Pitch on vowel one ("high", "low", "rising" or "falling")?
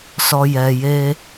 low